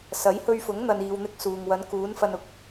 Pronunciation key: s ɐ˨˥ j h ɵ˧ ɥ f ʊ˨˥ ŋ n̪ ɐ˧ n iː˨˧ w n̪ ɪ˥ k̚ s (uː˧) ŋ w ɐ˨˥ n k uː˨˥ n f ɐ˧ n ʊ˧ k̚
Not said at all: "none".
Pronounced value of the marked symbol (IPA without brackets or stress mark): uː˨